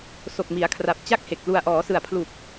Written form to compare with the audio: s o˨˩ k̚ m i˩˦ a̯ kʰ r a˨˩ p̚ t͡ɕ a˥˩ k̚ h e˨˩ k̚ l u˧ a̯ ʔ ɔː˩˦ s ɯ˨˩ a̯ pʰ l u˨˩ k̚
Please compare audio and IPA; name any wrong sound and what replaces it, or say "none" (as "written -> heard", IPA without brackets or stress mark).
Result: none